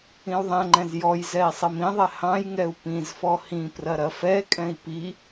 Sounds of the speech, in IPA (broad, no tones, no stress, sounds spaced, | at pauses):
ĩ u̯ ðˤ ɛ̃ ŋ͡ǃ ɛ̃ z j ɔ j z ɛ i̯ sˤ i m ĩ ðˤ ɛ h ɑ̃ j ŋ ɛ u̯ p ĩ z f ɔ h ĩ p r ɐ ɾ ɐ f ɛ kʼ ɛ̃ i̯ p i